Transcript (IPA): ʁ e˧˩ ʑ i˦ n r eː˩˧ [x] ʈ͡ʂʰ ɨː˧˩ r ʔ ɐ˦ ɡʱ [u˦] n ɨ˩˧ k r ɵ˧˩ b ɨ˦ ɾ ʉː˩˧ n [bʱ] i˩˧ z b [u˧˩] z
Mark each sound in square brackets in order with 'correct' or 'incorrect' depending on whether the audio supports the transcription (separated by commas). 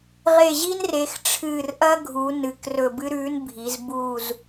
correct, incorrect, correct, incorrect